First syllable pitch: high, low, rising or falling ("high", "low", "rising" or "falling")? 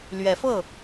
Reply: rising